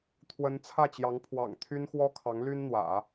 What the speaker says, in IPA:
t̪ʰ w ə˧˥ n t͡sʰ ä˥˩ t͡ɕ j ɑ˧˥ ŋ pʰ w ɑ̰˨˩ ŋ t̪ʰ y˥ n x w ɔ˥ kʰ ɑ˧˥ ŋ l y˥ n n̪ w ä̰˨˩˦

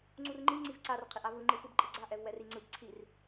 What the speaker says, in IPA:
ŋ͡ǀ u r ŋ͡ǃ i ŋ͡ǀ i v ǀ a r qʰ i ʔ a v ɯ ŋ͡ǃ ɯ f ɯ b ǃʼ ɯ ɡ͡ǀ a ʔ ɛ v w ɛ r i ŋ͡ǀ ɯ b ǀʰ i r

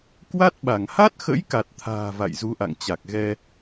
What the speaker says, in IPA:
k w a˦˥ t̚ ɓ a˧˩ ŋ h a˦˥ t̚ x ə̰˧˥ j k a˨˩ t̚ t̪ʰ a̤ː˨˩ v a̰˧˨ j z u˨˦ ʔ a̰˧˨ ŋ t͡ɕ a˨˩ k̚ ɣ ɛ˧

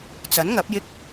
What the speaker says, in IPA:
t͡s ɐ˨˥ n ŋ ɐ˨˥ p̚ j ɪ˥ k̚

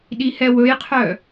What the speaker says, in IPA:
ɗ i h ɛ w ɵ j qʰ œ

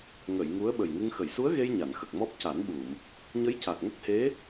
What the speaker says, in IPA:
ŋ ə˨˩˨ j ŋ u˧˥ ə̯ ɓ ə˨˩ j ŋ ɨ˧ ŋ x ə˨˩˨ j s u˧˥ ə̯ ɣ e˧ j ɲ a˨˩˨ n x ə˨˩ k̚ m ɔ˦˥ p̚ c a˨˩˦ n ɓ u˨˩˨ m | ɲ ə˧˥ j c a˨˩ k̚ ŋ ə˦˥ k̚ h e˧˥

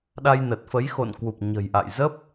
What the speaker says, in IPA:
ɗ a˧ j n ə˨˩ t̚ f ə˨˦ j x o̰˧˨ n k w u˨˩ p̚ ɲ ə̤˨˩ j ʔ a̰˧˨ j z ə˦˥ p̚

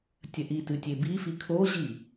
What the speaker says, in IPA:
tʲ ɐ ʔ i t ɨ tʲ e b i f i kʰ o ʑ i

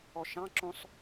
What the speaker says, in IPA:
ɔ ʃ ɑ̃ ǁ õ sˤ

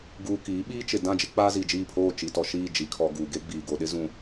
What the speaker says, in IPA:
ɡ uː˨ k iː˨˦ ɓ iː˦ t͡ʃ ɪ˨ d ã˦˨ d͡ʒ ɪ˦ k͡p aː˦ z i˨ d͡ʒ iː˦˨ pʰ oː˦˨ t͡ʃ i˨ t ɔ˨ ʃ iː˦˨ d͡ʒ i˨ kʰ ɔ˨ ɡ uː˨ ɡ e˦ ɡ͡b iː˨ ɡ o˨ ɗ ɪ˦ z ũ˨

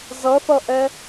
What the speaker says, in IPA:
z ʌ θ ʌ ʔ ɛ

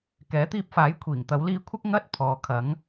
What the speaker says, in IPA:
k ɛː˨˥ t̪ iː˧ p̚ f aː˨˥ j kʷʰ iː˨˩ ŋ t̪ ɐ˨˧ w l iː˧ kʷʰ ɐ˥ k̚ ŋ ɐ˧ t̚ pʰ ɔː˨˧ kʰ ɐ˨˥ ŋ

